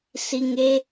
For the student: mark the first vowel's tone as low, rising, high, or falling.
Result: low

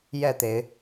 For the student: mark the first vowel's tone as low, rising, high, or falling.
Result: falling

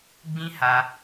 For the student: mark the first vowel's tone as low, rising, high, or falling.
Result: high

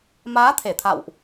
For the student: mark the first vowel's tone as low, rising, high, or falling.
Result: rising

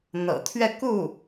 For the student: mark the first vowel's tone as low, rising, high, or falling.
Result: low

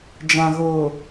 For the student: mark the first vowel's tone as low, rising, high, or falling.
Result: low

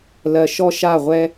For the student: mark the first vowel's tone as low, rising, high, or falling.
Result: low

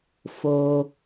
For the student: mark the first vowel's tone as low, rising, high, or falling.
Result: low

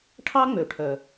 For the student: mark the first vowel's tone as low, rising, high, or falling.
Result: high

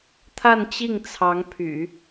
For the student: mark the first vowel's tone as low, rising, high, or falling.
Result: falling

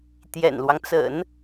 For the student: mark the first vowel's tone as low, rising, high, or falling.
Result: low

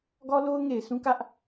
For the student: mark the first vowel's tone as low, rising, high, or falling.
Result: high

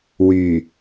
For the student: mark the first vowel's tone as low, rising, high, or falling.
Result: low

